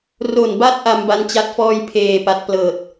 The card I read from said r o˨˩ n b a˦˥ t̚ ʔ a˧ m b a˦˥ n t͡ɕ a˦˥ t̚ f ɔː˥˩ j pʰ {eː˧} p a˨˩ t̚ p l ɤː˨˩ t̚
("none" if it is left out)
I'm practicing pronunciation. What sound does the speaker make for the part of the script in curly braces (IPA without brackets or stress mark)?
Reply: eː˨˩